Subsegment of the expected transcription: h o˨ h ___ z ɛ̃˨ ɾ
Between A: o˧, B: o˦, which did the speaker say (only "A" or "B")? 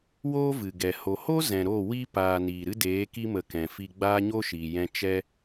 B